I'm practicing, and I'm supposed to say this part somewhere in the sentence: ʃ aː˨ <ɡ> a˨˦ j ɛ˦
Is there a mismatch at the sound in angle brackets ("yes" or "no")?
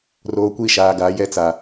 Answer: no